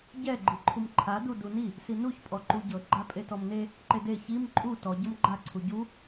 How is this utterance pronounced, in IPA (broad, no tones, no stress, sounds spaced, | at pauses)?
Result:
ɟ ɛ ɡ͡ǃ i ǃʰ u m ǃʰ a d u d u n i | s i n u ç pʼ ɔ ǃ u ɟ ɤ ɡ͡ǃ a pʼ e t ɔ m n e | ǃ e d e ç i m ǃʼ u t ɔ ɟ ɤ m ɡ͡ǃ a ǀʰ u ɟ u